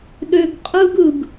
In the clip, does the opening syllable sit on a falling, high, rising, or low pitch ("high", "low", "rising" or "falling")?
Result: high